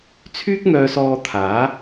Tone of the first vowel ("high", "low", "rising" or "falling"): high